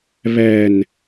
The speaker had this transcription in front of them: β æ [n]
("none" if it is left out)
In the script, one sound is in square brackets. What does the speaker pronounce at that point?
n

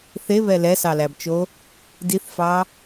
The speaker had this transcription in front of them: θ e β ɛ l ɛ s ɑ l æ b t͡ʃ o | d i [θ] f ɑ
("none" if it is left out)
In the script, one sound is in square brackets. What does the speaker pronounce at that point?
θ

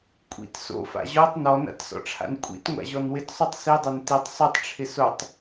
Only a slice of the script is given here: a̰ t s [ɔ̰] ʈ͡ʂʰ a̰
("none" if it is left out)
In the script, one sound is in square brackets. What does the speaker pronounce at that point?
ɔ̰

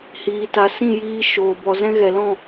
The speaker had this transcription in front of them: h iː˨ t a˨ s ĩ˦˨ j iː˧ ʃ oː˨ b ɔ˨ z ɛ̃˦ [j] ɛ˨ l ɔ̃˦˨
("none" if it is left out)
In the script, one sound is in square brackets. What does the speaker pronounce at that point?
ɣ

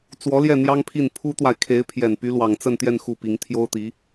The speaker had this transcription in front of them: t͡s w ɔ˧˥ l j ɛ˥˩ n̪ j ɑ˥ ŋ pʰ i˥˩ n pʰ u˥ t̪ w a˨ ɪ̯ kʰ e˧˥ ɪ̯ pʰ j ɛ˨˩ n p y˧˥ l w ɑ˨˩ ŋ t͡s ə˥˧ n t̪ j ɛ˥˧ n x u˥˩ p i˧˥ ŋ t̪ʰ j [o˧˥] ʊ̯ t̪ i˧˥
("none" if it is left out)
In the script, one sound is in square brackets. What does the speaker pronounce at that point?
o˥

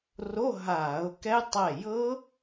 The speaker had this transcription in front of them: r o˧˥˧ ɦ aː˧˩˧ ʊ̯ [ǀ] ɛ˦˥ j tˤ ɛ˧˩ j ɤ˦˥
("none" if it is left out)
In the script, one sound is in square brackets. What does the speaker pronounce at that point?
k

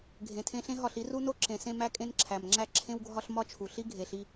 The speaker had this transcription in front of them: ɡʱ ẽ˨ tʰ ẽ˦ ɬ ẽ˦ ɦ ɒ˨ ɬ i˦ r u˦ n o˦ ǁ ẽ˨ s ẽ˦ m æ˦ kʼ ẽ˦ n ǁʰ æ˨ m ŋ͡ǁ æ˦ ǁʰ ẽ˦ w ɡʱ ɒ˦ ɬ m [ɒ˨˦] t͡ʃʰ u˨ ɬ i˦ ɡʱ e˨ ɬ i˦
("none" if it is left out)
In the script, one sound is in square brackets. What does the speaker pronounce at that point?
ɒ˦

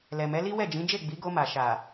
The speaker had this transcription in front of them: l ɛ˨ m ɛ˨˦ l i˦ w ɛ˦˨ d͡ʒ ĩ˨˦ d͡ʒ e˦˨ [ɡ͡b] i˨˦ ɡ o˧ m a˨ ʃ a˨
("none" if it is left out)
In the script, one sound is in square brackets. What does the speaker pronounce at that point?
ɡ͡b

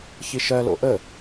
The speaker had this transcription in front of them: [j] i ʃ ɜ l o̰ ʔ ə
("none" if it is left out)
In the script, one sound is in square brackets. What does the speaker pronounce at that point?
ç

